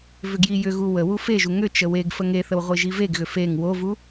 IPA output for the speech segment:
v ʏ ɡ j i j ʏ ɣ u w ə w u f e ʒ u ŋ ʏ t͡ʃ ə w e ɡ f ə ŋ e θ ə w ʁʷ i ʒ i v e ɡ ɣ ʏ f e ŋ w o v u

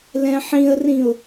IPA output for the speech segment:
l ɛ̃ ħ ĩ ə̯ r ĩ ʊ̯

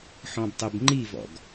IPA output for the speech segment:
ħ ɔ̃ b tˤ e b ŋ͡ǃ i v ɔ̰ ɡ

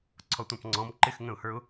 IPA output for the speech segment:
ǀʰ ɔ tʷ ɑ̃ p ŋ͡ǀ ɔ̃ m ǃ ɪ x ŋ ə̃ ʊ̯ h ə˞ ʊ̯

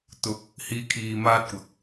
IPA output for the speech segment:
t̪ ʊ˨˥ k̚ | h iː˧ kʰ iː˨ m aː˥ t̚ kʷ ɐ˨ k̚

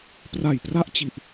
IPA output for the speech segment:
p r a˨˩ j p r a˥˩ ʔ t͡ɕ i˨˩ ʔ

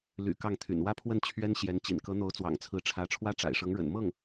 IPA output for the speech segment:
l y̰˨˩ k ɑ˥˩ ŋ t̪ʰ y̰˨˩ n w ä˥ pʰ w ə˥˩ n t͡ɕʰ ɥ ɛ˥ n ɕ j ɛ˧˥ n t͡ɕ ḭ˨˩ n k ɤ˧˥ n̪ o˧˥ ʊ̯ t͡s w ɑ̰˨˩ ŋ t͡sʰ ɹ̩˧˥ ʈ͡ʂʰ ä˧˥ ʈ͡ʂʰ w ä˥ ʈ͡ʂ a̰˨˩ ɪ̯ ʂ ɤ˧˥ ŋ ɻ ə̰˨˩ n m ɤ˥˩ ŋ

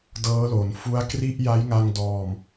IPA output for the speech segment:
d ɤː˦˥ l o˩˦ n f u˦˥ a̯ k r i˥˩ ʔ j a˦˥ j ŋ a˧ ŋ d ɔː˨˩ m

